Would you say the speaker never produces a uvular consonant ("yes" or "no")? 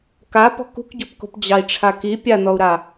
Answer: yes